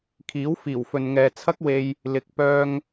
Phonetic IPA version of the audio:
kʰ iː˨˥ w f iː˨˩ w f ɵ˨ n ŋ ɛː˨ t͡sʰ ɐ˥ k̚ w e˧ j | l ɪ˨ k̚ p œː˧ ŋ

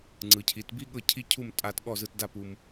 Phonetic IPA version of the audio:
ŋ͡ǀ ɯ˩˧ cʰ i˩˧ t b i˥ ɠ ɤ˥˧ cʰ i˥ cʰ u˥˧ m tʼ a˥˧ t ɠ ɔ˥˧ z ɯ˧ t d a˥˧ p u˧ m

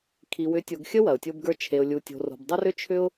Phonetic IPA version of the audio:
kʰ i˨ w ʏ˨˦ tʲ o˨ ɡ xʲ ə˦ w ɐ˨ ʊ̯ tʲ o˦ b ɡ ə˞˦ t͡ʃʰ e˨ ʊ̯ lʲ u˨ tʲ o̤˨ r o̤˨ b dˤ ə˦ r ʏ˦ t͡ʃʰ ʏ˦ ʊ̯

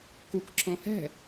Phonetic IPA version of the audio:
k u k ǁ ɔ̃ h ɛ̤

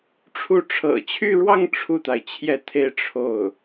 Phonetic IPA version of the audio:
ʈ͡ʂʰ u˥˩ ʈ͡ʂʰ ɤ̰˨˩ t͡ɕʰ y˥˧ ɻ w ɑ˥˧ ŋ ʈ͡ʂʰ u˥˩ t̪ a˩ ɪ̯ t͡ɕʰ j ɛ˥˧ t̪ʰ e˥˧ ɪ̯ ʈ͡ʂʰ o˥˩ ʊ̯

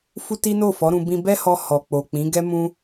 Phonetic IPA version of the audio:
f u˦ t i˦ n o˦˨ f ɔ˨˦ ɾ ũ˧ b ĩ˧ b ɛ˦ h ɔ˧ h ɔ˨ k͡p o˨ k͡p ĩ˨˦ ɡ ɛ˦ m ũ˦

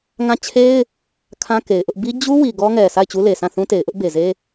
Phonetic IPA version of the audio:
ŋ ã˦˨ t͡ɕʰ e˦ ɪ̯ | kʰ ã˦ k e˨ ɪ̯ ʔ ʊ˦ ʔ b i˦ d͡ʑ u˦ w i˨ ɡ ɔ˦ ŋ ɛ˨ sʰ a˦˨ ɪ̯ t͡ɕ u˦ l e˨ sʰ ã˦˨ θ ũ˦ t e˨ ɪ̯ ʔ ʊ˦ ʔ b e˨ z e˦

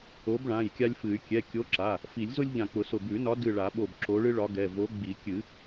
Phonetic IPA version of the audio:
o˨˥ b ɭ ã˩˧˩ j kʲ a˦ lʲ f ɨ˨˩˦ y̯ kʲ ɛ˩˧˩ kʲ o˨˥ ǁ a˩˧˩ | f i˨˩˦ lʲ z ʊ˦ lʲ ʎ ã˧˩ k͡p ʊ˨˩˦ s ʊ˧˩ b ʉ˨˩˦ n ɒ˨˥ d ɨ˧˩ ɭ a˨˩˦ ɓ o˧˩ b ǁ o˨˥ ɭ ɨ˦ ɭ ɒ˨˥ ɡ ɛ˩˧˩ v o˨˥ ɡ͡b i˨˩˦ kʲ ɨ˨˩˦

